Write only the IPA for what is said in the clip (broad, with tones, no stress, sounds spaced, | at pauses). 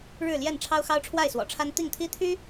ɻ ɻ̩˥˨ l j ɛ˥˨ n ʈ͡ʂʰ ɑ˦ ʊ̯ x ɑ˦ ʊ̯ ʈ͡ʂʰ w a˥˨ ɪ̯ s w ɔ̰˨˩ ʈ͡ʂʰ a˦ n t̪ i˥˨ ŋ t̪ʰ i˦ t̪ʰ y˦